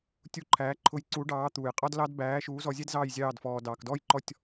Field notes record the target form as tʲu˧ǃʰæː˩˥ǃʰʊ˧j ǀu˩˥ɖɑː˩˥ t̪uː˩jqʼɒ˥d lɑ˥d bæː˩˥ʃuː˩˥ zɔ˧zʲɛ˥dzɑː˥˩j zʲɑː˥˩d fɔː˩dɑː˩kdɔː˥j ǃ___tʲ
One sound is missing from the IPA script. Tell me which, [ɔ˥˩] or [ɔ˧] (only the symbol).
ɔ˥˩